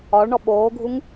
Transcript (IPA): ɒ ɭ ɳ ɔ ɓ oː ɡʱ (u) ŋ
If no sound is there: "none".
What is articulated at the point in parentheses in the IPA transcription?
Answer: u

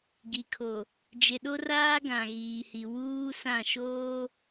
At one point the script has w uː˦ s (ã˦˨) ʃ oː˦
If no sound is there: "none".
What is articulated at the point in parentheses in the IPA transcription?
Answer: ã˦˨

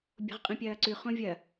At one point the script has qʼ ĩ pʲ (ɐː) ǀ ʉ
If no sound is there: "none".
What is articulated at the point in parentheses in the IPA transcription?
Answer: ɐː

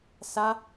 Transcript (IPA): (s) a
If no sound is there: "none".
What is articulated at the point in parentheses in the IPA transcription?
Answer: s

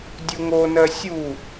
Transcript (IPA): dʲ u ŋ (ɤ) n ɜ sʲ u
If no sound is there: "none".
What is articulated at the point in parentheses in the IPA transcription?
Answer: o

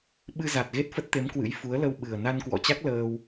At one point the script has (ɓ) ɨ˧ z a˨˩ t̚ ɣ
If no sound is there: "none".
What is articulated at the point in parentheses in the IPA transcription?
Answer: ɓ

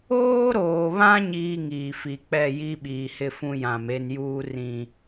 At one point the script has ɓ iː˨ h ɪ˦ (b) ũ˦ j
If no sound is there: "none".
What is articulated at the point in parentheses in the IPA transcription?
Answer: f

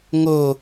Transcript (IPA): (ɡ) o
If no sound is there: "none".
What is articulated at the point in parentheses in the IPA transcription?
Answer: ŋ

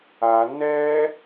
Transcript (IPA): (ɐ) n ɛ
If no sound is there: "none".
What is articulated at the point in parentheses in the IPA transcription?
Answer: a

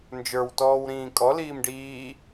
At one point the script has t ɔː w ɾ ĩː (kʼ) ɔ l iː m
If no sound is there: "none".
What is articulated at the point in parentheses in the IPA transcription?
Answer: kʼ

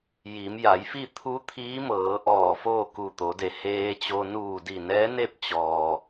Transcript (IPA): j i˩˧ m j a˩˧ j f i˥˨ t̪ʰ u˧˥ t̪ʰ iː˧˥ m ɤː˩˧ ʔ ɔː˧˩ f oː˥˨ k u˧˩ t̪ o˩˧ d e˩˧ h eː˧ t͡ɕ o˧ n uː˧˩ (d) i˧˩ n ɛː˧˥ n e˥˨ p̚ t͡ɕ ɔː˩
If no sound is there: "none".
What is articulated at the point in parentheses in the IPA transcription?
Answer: d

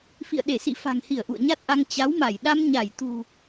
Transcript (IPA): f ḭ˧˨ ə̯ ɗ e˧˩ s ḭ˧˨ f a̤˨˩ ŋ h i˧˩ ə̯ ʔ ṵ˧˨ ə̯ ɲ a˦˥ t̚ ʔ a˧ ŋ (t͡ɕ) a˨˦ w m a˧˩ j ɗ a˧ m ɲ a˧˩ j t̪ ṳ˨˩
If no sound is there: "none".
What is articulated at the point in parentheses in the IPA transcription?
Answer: t͡ɕ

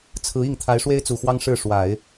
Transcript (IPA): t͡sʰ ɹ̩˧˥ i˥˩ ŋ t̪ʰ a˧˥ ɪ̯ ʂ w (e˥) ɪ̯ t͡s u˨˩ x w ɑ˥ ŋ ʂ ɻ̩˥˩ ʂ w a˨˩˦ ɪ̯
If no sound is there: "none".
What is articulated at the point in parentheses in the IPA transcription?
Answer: e˥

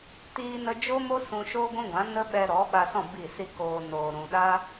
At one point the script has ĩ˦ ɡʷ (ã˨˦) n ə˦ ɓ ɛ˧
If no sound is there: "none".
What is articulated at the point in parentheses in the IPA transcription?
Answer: ã˨˦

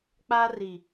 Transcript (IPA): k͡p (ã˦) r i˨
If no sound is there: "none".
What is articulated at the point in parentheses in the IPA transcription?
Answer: a˦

